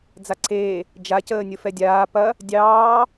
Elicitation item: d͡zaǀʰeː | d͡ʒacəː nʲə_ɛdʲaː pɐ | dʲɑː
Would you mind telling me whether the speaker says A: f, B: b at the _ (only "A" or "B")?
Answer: A